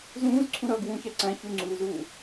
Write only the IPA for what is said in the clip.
z ũː z ǀʰ ũ ɾ ʌː ɡ w ũ ç æ ǀ æ̃ ç u ŋ͡ǀ uː z uː

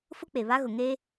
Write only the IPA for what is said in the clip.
f ʊ˦ k͡p e˨ β a˦ ɣ ʊ˨ ŋ e˦

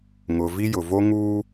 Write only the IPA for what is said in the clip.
ŋ ʊ˨ v i˦ j ʊ˨ v o˦ ŋ uː˦

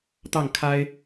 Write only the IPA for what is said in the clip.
t̪ ɑ˥˨ ŋ kʰ a˦ ɪ̯

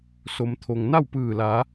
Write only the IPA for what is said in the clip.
s o˩ m t̪ʰ o˩ ŋ n a˥˨ w p ɯː˧˩ l aː˩˧

